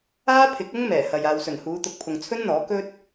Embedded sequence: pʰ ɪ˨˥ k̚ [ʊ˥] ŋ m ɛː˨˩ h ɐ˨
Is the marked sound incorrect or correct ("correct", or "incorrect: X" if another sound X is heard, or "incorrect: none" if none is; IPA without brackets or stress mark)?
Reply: correct